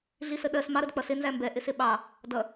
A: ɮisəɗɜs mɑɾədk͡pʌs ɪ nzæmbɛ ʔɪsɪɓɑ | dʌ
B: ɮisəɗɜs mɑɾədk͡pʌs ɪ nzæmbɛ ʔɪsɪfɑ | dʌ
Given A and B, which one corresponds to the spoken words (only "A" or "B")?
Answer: A